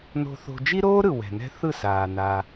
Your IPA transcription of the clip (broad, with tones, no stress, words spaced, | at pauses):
no̤˧θo̤˧ d͡ʒi˦ɾoː˦ɾɯ˨ wɛ̤˨nɛ̤˦ θɯ˦˨saː˨ na˧